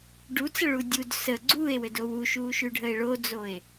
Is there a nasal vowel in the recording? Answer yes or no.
no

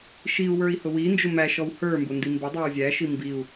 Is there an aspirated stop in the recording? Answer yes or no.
no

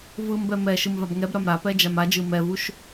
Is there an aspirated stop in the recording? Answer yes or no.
no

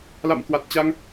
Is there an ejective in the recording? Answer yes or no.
no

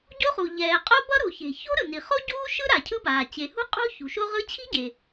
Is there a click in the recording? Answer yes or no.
no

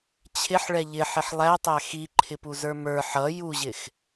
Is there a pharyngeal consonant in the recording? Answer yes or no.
yes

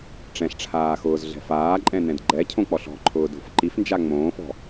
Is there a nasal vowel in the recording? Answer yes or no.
yes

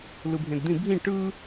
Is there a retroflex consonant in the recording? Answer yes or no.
yes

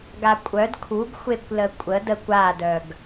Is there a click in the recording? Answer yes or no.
no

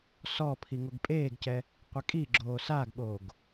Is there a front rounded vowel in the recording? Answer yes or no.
no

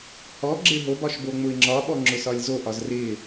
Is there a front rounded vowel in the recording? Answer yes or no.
no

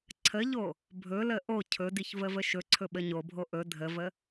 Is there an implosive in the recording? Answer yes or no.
yes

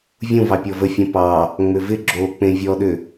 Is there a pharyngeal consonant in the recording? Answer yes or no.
no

